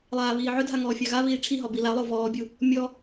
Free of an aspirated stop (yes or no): no